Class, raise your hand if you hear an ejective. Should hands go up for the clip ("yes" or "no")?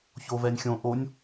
no